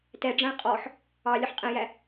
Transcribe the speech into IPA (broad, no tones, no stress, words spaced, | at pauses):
tɛɖ͡ʐæ̃ qʼɔħ | ɑlʲʊħ qʼɛ̃jæ